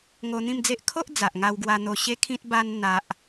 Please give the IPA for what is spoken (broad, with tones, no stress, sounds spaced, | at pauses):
ŋ o˧ n̪ ĩ˥˧ m d͡z e˦ ʔ kʰ o˦ ʔ d͡z a˨ ʔ ŋ a˧ w ɡ w a˧ n̪ o˧ ɕ e˦ kʰ ĩ˦ t̚ b a˦ n n̪ a˦ ʔ